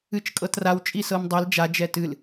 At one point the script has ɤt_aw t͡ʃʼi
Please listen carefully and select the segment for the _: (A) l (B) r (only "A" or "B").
B